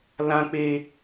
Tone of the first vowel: high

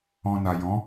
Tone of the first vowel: low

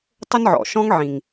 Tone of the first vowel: high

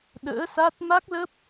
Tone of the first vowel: rising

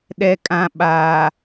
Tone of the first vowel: low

